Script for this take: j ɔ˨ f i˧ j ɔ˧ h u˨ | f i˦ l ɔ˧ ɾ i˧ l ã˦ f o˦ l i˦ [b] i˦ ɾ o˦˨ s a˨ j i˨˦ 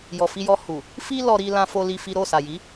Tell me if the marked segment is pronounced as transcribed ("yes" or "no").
no